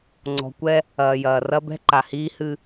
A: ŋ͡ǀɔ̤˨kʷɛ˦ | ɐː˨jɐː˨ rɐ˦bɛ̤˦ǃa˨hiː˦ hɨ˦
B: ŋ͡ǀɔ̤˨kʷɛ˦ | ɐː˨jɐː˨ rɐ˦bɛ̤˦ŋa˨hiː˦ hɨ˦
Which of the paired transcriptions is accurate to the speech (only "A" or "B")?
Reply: A